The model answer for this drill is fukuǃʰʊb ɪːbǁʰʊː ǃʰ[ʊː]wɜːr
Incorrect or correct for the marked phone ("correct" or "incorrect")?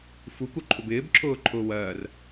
correct